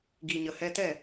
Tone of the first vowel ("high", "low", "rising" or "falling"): low